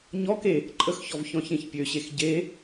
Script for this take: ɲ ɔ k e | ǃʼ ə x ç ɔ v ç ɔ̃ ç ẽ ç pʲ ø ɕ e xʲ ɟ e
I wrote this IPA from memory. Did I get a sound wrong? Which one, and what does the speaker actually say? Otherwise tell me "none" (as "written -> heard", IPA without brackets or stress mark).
xʲ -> x